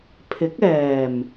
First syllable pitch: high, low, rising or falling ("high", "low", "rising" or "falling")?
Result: rising